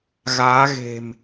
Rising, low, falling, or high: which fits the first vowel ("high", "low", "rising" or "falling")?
rising